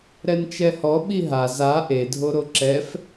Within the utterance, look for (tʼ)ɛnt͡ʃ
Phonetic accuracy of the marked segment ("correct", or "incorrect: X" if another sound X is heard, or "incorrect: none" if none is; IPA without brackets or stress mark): incorrect: ɾ